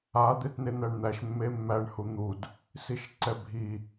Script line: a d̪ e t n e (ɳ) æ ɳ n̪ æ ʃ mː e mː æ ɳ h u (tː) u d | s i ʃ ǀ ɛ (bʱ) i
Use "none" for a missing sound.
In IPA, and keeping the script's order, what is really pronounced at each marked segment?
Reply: n̪, n̪, bʱ

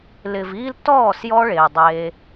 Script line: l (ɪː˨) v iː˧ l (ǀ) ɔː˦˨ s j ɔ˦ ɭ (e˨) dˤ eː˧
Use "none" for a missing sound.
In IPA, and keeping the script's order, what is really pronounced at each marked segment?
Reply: ɪː˨, t, eː˨

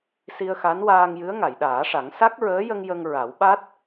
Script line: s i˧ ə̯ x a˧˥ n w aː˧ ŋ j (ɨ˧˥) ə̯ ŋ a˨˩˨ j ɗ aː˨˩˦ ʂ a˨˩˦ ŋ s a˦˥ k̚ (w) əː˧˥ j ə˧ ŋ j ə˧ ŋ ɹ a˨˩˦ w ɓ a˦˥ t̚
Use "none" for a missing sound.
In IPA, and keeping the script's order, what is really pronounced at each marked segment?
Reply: ɨ˧˥, ɹ

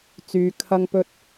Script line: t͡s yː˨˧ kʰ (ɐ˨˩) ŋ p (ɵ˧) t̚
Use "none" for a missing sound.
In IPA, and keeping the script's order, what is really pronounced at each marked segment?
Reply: ɐ˥, ɵ˥

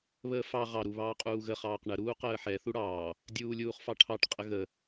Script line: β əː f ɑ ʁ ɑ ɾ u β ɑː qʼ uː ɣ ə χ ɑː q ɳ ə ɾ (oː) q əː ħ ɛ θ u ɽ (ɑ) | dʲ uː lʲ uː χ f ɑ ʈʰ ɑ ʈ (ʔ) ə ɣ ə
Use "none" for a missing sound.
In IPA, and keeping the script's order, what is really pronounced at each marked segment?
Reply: uː, ɑː, qʼ

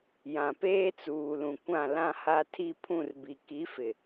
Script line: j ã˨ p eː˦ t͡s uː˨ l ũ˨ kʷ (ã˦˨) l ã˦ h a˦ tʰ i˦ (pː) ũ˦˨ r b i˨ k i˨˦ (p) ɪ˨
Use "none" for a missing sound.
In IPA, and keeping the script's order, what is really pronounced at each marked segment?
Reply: ã˦˨, pʰ, f

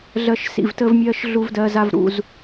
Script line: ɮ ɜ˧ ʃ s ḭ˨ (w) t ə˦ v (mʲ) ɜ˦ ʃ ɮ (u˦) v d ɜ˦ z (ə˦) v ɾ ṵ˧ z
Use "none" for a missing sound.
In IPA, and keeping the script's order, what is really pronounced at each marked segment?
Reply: v, mʲ, u˦, a˦

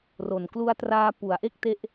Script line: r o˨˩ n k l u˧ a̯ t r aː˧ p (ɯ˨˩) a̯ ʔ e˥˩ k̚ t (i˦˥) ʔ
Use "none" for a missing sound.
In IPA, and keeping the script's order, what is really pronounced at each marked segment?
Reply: u˨˩, e˦˥

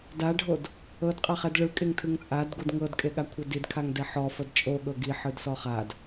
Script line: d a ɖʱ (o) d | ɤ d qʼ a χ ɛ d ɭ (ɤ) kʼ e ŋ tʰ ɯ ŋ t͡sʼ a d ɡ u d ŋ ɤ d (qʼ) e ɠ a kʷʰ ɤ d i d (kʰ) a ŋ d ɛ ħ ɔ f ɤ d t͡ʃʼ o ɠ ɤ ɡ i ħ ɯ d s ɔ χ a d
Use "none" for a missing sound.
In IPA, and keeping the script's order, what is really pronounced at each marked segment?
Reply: o, ɯ, kʼ, kʰ

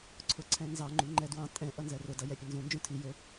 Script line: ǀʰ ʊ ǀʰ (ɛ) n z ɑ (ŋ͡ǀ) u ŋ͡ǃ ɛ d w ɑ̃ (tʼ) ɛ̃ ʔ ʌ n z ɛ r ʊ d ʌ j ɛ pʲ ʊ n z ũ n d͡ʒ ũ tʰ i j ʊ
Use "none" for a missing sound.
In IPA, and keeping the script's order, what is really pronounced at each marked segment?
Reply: ɛ̃, ŋ͡ǃ, tʼ

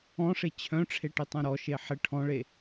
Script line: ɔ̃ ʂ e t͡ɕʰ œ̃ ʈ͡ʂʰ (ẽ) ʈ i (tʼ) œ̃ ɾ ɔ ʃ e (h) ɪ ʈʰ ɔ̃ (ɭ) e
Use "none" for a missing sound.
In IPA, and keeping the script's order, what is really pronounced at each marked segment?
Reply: e, tˤ, ħ, ɭ

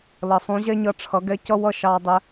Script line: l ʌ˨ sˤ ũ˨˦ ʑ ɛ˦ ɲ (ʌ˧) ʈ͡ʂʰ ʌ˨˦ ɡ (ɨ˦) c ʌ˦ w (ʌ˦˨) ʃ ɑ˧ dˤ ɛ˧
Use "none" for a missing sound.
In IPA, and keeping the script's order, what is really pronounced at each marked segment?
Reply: ʌ˧, ɛ˦, ʌ˦˨

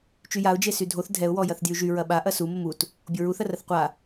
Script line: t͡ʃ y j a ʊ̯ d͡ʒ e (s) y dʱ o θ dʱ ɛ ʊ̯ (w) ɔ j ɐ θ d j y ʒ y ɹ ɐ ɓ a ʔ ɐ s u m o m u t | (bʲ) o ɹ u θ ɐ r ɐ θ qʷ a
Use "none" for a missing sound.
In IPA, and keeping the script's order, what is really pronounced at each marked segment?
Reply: s, w, bʲ

